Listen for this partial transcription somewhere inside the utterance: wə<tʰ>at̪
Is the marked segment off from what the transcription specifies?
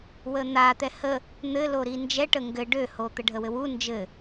yes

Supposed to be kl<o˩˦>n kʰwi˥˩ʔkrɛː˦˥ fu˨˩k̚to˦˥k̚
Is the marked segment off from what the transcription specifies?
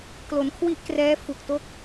no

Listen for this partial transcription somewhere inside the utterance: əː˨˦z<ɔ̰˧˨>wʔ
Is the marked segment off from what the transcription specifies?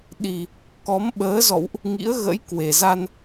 no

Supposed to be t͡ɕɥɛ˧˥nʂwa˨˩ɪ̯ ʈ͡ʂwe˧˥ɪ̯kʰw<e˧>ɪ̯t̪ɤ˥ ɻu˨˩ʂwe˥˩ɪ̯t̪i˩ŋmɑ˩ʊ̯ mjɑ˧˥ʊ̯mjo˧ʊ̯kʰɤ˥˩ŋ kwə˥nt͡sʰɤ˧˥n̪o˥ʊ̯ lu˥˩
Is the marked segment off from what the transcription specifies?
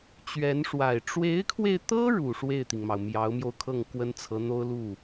no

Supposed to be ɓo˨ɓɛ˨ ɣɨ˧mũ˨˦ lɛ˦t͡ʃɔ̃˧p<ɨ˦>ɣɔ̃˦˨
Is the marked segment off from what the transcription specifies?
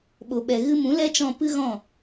no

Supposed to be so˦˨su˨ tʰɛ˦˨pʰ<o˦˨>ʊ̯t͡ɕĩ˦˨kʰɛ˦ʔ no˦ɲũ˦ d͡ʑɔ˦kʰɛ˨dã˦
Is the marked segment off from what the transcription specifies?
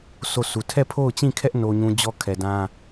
no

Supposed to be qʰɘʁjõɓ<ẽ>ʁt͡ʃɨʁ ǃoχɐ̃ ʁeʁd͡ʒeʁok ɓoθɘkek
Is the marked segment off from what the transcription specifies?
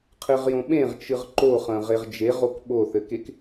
no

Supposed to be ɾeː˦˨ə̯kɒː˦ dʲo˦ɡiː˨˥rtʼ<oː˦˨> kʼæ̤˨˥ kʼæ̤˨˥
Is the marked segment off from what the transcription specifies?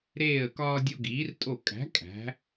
yes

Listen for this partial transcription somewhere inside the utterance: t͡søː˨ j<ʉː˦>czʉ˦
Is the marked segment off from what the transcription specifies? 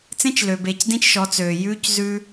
no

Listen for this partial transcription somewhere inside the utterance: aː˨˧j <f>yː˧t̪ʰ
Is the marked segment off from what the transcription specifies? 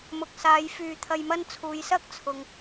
no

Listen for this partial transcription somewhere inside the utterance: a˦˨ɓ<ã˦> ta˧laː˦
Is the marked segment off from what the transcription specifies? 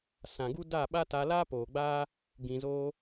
yes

